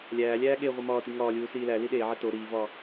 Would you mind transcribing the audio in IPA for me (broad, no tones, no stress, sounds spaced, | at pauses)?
lʲ æː lʲ æː ɠ e ʁʷ i m ɒː t i ŋ ɒː lʲ uː s iː l æ l i ɗ eː ʕ e t o ɾ iː v ɒ